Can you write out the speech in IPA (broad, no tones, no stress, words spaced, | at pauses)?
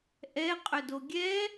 ʔɛqʼɵdo ɡʲɛ